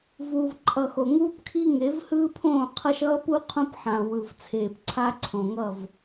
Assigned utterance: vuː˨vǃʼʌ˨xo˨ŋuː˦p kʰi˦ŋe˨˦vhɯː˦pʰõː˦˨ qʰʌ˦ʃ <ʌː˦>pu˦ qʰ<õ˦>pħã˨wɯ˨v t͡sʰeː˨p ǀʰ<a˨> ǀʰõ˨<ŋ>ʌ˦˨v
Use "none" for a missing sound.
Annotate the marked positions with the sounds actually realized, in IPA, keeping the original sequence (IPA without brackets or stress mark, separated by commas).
ʌː˦, õ˦, a˦, ŋ